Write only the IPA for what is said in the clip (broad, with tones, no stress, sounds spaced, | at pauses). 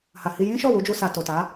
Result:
h a˨ h i˧ j ĩ˦ ʃ ɔ˦˨ w u˧ d͡ʒ u˧ s a˨ t o˨ t a˨˦